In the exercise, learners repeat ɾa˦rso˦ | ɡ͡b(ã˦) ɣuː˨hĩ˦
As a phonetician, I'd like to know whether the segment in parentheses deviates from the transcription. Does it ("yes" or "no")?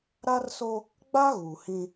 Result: yes